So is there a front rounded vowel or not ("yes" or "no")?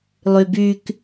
yes